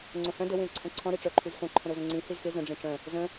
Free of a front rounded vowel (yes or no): no